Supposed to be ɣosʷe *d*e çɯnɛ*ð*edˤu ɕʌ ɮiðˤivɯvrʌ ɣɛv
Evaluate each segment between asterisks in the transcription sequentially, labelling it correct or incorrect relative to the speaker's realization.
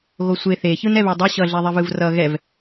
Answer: incorrect, incorrect

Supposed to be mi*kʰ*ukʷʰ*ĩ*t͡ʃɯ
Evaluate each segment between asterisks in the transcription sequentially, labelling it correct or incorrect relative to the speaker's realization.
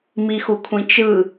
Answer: incorrect, correct

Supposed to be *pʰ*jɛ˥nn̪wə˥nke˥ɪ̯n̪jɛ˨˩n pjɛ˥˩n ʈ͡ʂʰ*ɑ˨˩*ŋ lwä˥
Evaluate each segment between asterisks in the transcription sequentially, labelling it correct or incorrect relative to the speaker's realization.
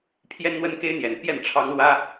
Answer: correct, incorrect

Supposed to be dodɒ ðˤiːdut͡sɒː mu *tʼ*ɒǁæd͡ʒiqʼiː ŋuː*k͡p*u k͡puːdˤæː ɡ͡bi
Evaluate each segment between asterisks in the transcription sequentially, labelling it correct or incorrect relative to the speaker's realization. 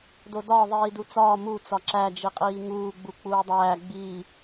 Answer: incorrect, incorrect

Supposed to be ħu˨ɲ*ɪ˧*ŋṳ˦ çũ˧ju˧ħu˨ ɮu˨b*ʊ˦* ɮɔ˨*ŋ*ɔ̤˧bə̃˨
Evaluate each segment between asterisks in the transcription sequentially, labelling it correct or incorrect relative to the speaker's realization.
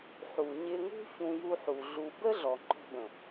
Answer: correct, incorrect, incorrect

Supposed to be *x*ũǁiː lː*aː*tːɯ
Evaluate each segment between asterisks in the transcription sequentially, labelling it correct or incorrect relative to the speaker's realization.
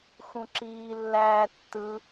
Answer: correct, incorrect

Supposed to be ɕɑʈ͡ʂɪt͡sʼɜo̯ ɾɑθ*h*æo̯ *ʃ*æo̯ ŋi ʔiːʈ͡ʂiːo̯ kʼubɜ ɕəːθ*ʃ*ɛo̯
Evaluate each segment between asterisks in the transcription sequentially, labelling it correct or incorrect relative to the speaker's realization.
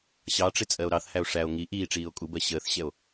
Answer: correct, incorrect, incorrect

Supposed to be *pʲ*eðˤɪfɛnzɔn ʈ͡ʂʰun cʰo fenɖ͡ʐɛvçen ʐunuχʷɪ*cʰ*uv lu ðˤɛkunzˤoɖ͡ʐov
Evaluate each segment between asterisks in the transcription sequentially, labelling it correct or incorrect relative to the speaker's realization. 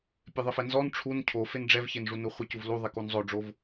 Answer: correct, incorrect

